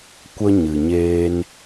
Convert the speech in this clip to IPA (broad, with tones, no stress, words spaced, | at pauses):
kʷə˦ ɲɨ˨ɲeː˦n